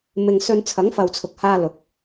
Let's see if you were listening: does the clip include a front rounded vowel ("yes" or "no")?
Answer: no